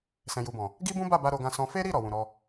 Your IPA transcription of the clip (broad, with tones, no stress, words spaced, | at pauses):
sɛ̃˨ju˨bɔ̃˨ | ɡi˦bũ˦ba˦˨ba˧ ɾo˧ɡã˧sɔ̃˧ fe˦ɾi˦˨ ɾɔ˨wũ˨ɾɔ˧